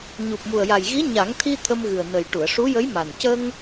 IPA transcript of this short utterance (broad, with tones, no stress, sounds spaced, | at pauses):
ɲ u˨˩ p̚ m u˨˩ ə̯ j a˨˩ j ɣ i˧˥ ɲ a˨˩˦ ŋ t̪ʰ i˧ t̪ʰ ə˧ m ɣ ɨ˨˩ ə̯ n ə˨˩ j ʈ u˨˩˨ ə̯ ʂ u˧˥ j ə˧˥ j m a˨˩ n c ə˧ ŋ